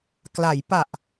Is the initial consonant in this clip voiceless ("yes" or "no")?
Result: yes